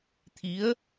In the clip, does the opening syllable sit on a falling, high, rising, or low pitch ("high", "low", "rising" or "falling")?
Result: rising